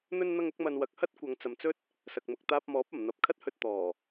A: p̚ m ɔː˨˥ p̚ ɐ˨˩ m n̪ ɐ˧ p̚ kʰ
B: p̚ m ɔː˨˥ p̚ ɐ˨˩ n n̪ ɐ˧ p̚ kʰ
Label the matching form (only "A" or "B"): A